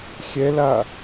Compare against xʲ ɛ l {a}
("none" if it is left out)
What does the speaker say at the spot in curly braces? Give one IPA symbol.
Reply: a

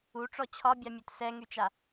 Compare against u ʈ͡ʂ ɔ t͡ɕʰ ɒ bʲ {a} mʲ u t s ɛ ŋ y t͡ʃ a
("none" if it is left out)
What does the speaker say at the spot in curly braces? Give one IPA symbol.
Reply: a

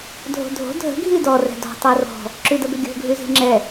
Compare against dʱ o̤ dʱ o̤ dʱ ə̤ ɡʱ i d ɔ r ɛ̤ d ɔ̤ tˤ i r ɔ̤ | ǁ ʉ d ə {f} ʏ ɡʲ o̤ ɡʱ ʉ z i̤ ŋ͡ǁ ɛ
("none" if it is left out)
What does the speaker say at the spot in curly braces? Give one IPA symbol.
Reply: b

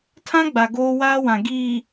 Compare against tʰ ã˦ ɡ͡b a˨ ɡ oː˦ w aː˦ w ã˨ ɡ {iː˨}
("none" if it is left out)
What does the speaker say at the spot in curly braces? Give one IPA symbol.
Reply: iː˨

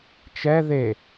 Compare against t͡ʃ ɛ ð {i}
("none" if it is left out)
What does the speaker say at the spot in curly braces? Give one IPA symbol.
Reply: e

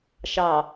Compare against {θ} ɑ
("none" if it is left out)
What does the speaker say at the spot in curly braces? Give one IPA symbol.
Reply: ʃ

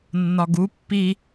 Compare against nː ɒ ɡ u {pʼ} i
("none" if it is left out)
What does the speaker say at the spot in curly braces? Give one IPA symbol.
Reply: pː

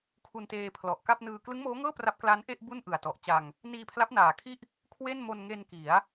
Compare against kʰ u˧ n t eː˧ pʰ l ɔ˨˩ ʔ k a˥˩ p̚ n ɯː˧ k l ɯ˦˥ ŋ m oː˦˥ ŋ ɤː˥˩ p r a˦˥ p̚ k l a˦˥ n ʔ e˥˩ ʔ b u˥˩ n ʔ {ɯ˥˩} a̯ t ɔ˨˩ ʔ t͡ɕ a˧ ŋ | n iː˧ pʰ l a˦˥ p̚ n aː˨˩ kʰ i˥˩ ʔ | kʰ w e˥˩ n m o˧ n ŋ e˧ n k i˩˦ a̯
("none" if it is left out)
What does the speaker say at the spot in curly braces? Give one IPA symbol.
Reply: ɯ˨˩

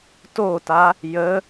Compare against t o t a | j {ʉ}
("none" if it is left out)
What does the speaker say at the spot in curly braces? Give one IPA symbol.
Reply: ə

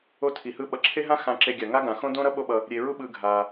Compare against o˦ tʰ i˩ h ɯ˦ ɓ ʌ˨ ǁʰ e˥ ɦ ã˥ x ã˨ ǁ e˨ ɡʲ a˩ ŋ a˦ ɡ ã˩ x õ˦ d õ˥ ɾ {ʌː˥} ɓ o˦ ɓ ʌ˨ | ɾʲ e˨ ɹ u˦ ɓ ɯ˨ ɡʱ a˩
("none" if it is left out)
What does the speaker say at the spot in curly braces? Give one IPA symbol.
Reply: ʌ˥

